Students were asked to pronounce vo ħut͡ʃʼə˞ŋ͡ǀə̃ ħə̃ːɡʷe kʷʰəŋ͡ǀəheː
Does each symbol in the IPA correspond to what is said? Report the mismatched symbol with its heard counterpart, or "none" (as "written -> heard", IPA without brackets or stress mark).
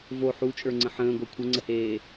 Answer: none